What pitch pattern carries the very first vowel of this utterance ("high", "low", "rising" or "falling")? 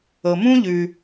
low